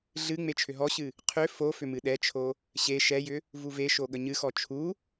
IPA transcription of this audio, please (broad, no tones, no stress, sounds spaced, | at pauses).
ɮ ɨ ŋ͡m e t͡ʃʰ ʏ ɦ ɔ ɕ ɨ | qʰ ʏ f o f ʏ m ɨ ɗ ɛ t͡ʃʰ o | ɕ e ʃ ɛ j ʏ | v u v e ʃ o ɠ ə ɲ ɨ x ɔ t͡ʃʰ u